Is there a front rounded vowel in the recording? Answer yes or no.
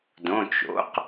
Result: no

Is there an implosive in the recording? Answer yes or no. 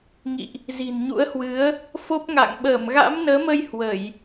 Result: yes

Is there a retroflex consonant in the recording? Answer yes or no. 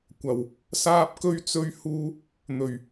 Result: no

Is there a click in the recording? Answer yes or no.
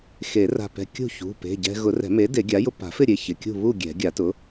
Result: no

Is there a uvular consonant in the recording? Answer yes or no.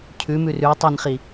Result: yes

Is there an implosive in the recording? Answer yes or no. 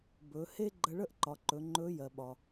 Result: yes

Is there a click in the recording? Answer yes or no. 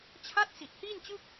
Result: no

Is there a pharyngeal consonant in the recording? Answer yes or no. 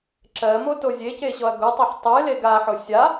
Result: yes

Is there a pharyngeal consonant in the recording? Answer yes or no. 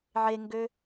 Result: yes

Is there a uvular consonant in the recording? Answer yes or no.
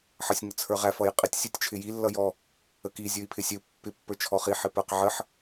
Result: yes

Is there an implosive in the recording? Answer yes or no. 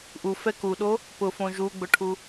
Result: yes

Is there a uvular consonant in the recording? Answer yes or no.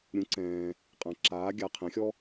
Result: yes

